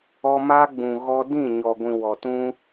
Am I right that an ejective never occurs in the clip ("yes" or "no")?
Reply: yes